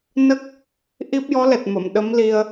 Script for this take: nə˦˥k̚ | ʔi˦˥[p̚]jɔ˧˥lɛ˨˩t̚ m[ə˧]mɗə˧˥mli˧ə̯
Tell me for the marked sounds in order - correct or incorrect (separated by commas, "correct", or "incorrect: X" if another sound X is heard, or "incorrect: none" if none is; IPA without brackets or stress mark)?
correct, incorrect: ə˨˩˨